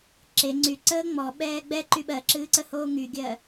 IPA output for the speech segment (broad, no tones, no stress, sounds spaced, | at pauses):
ǁ e ŋ͡ǀ y ǀ əː ŋ͡m ɔ ɓ ɛː ɡ͡b ɛ ǃ y ɓ ɜ ǁ ɨː ǀ ə h oː ŋ y ɡʲ ɜ